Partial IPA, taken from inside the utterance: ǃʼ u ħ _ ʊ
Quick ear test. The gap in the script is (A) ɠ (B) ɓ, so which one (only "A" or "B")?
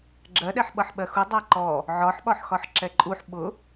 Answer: B